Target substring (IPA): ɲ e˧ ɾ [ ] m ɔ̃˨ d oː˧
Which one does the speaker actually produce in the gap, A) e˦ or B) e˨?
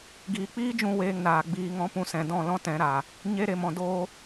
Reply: B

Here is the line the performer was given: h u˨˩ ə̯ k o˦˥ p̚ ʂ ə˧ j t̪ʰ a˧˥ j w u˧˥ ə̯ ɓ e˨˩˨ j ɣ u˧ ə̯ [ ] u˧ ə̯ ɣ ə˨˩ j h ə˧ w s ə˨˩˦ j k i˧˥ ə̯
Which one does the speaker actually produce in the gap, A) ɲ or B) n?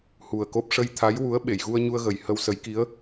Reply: A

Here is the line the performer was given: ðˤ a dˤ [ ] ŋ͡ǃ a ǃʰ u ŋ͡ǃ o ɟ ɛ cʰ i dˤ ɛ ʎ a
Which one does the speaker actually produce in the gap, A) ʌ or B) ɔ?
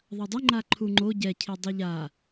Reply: A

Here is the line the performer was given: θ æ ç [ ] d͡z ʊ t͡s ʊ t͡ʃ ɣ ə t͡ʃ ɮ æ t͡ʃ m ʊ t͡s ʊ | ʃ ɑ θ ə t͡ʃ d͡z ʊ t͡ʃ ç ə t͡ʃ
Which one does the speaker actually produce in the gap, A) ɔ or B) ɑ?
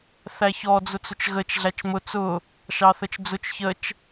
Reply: A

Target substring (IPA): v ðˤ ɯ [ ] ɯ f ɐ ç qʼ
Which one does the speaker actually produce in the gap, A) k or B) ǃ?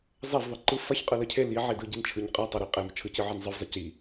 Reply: B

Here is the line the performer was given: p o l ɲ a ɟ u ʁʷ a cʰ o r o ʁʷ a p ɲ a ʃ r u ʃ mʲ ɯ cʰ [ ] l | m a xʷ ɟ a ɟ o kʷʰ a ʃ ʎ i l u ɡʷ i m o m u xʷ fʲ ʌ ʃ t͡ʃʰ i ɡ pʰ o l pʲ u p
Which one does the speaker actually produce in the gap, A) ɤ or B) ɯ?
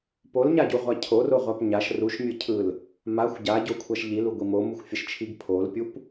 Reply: B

